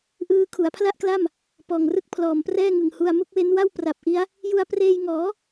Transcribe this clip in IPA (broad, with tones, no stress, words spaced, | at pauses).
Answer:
ʔɯː˦˥kʰu˩˦a̯pʰla˥˩ʔkla˥˩m | pɔː˨˩ŋrɯ˥˩k̚ pʰlɔː˨˩mprɛː˥˩ŋɯ˨˩ŋhu˧a̯ mu˦˥k̚we˦˥nwa˥˩w pra˨˩p̚ʔi˦˥a̯ | ju˧a̯preː˧jŋɔː˩˦